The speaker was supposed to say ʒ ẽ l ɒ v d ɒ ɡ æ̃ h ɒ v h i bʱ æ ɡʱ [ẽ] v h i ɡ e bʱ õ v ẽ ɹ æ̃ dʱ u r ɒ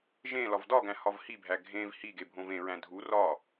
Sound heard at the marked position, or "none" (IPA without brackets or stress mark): ẽ